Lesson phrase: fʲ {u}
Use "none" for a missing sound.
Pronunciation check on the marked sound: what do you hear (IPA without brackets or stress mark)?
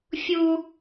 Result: u